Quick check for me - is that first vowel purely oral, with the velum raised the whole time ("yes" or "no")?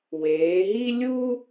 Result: yes